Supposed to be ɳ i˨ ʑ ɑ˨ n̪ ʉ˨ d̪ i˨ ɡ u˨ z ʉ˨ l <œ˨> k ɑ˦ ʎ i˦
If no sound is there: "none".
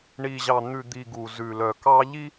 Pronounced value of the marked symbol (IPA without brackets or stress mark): œ˨